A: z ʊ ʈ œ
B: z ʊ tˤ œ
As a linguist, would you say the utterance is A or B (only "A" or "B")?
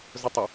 B